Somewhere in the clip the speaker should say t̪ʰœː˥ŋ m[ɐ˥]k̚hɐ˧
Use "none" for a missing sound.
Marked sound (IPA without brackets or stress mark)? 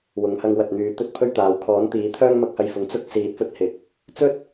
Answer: ɐ˥